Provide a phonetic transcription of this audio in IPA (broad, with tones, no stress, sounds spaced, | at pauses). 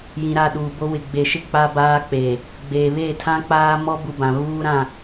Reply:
j ĩ˨ ɾ a˦˨ ɗ uː˨ b o˦ w ɪ˨ ɡ͡b e˨ ʃ ɪ˦˨ k͡p a˦ b aː˦ k͡p eː˨ | ɡ͡b eː˨ β eː˦˨ tʰ ã˦ k͡p aː˦ m ɔ˦ b u˦ b ã˨ β uː˦ ɾ ã˦˨